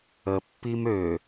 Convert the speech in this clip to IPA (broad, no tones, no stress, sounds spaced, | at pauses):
ə pː i m ø